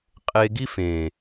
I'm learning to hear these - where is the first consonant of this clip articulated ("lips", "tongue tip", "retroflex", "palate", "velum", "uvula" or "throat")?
uvula